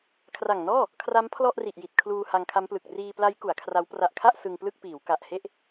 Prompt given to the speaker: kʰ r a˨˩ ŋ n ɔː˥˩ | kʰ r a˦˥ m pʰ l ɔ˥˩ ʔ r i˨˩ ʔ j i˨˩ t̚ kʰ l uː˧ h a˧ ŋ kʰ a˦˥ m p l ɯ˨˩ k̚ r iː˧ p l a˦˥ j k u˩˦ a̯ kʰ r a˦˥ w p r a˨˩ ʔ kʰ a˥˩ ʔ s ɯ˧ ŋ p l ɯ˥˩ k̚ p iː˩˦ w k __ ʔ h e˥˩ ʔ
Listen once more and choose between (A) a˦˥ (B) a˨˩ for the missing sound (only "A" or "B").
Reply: B